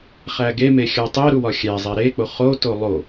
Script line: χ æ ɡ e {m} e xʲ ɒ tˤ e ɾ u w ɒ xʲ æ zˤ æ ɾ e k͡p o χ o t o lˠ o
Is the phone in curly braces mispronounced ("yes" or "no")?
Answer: no